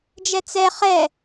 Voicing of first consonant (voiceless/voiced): voiced